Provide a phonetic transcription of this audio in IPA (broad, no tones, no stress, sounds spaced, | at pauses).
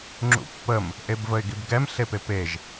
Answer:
ŋ͡ǁ ṵ pː ə m | ʔ e b v ə ɪ̯ ɡ i b ɡ ɛ m ɬ e p e p e ʒ